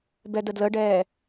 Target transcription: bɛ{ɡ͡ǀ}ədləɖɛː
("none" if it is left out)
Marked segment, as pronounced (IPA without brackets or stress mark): d